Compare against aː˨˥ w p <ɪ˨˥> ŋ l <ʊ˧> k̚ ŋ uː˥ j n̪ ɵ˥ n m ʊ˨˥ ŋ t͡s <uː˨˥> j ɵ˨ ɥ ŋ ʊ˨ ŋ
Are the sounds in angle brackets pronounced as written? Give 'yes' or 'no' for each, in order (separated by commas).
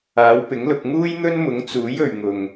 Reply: yes, yes, yes